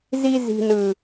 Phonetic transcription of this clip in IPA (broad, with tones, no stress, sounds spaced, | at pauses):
z i˦ z i̤˦ n ɯ˦